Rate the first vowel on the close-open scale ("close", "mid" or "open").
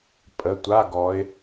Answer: mid